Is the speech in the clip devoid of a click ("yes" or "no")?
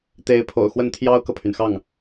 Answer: yes